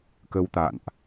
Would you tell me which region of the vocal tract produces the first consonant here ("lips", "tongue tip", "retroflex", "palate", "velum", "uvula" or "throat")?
velum